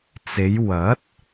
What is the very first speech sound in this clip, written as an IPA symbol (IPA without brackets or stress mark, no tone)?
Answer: t͡s